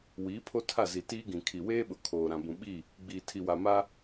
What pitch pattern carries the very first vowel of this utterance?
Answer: rising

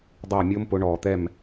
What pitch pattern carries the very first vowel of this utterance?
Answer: falling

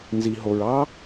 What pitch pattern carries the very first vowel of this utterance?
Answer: low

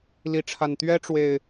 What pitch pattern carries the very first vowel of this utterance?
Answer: rising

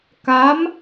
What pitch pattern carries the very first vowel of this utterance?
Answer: rising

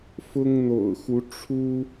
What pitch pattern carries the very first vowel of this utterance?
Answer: high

